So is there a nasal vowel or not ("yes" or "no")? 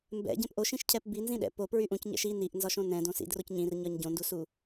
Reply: yes